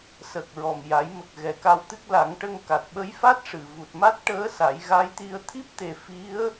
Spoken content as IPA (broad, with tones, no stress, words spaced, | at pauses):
sə˨˩k̚ ɹɔ˨˩mja˨˩˦jmə˨˩k̚ ɣɛ˨˩ka˧w t̪ɨ˦˥k̚la˨˩˦ŋʈə˧ŋ ka˨˩t̚ɓə˧˥jfa˦˥t̚ ʂɨ˨˩˨vu˨˩t̚ ma˦˥t̚ʈəː˧˥ sa˨˩˦j ɣa˧˥jt̪i˧ə̯ t̪ʰi˦˥p̚t̪e˨˩ fi˧˥ə̯